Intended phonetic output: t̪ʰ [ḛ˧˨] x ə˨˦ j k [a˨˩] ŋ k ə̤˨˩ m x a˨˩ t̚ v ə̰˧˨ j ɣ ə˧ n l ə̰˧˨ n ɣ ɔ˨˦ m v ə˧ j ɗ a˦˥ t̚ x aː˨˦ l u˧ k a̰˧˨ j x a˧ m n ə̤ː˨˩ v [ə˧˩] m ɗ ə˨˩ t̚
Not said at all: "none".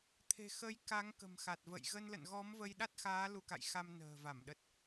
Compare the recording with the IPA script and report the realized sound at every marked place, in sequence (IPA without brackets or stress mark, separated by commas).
e̤˨˩, a˨˦, a˧˩